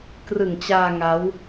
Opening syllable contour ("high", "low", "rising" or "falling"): low